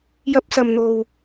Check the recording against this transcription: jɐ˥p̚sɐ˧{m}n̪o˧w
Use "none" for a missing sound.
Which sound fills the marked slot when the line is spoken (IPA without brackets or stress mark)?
m